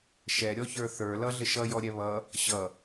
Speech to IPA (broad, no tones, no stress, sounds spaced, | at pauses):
ʃ ɛ ɾʲ ɔ ç ə˞ θ ə˞ l ʌ ɮ ɪ ʃ ʌ j ɔ ɾʲ ɛ β ʌ | ɕ ʌ